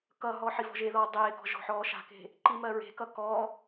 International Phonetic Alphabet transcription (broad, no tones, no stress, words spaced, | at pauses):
kʌɦɔ ħivɔ̤ʒeðɔː dˤeːkɔ̤ ʒɔ̤ħɔːʃa̤ke̤ | ǃimɜɹe̤kʌ kɔ